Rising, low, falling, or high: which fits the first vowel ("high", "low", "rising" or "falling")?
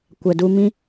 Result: low